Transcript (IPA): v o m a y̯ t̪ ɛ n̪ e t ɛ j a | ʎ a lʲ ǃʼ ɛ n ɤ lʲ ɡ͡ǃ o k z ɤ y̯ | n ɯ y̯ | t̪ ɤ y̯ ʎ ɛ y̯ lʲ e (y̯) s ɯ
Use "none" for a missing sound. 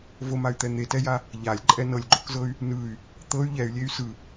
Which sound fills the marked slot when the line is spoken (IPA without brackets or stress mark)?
y̯